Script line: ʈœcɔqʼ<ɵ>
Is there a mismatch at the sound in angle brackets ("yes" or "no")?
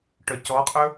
no